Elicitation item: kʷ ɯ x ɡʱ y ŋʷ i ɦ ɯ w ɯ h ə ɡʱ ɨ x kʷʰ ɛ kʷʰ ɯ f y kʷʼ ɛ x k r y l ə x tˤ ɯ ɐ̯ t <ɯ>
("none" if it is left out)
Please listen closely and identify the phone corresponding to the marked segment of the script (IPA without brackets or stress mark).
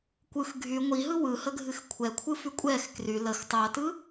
ɯ